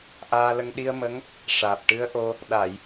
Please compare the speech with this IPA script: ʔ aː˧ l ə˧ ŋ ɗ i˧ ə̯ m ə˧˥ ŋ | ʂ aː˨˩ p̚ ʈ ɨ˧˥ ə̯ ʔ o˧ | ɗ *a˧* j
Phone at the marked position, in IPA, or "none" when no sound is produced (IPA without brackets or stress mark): a˨˩˨